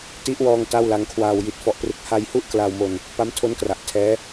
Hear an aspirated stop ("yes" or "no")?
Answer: yes